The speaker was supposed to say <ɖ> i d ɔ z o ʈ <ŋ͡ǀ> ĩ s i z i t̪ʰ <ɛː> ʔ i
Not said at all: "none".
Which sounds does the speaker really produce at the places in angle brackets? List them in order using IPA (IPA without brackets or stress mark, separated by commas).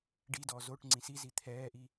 ɖ, ŋ͡ǀ, ɛː